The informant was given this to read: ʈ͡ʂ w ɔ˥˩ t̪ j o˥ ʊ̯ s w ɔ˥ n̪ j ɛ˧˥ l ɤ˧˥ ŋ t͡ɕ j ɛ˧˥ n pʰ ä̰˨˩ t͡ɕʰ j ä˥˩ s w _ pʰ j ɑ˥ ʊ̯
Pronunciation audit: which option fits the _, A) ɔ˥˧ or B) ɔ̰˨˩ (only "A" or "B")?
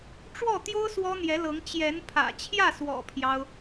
B